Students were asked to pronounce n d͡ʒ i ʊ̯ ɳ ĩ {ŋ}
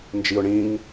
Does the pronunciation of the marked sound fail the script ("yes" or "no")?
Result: no